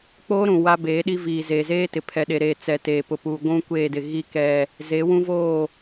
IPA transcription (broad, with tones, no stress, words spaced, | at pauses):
k͡poː˦ɾũ˨ wa˦ beː˨˦ɗi˦ viː˨zeː˨zeː˦tɪ˨ pʰɛ˨ɗe˨ɾeː˨ t͡sɛ˨teː˨pʊ˨ pu˨ ɡʷũ˦kʷeː˦˨dɪ˨ ɣi˨kɛ˨ | ze˨˦wũ˦voː˦˨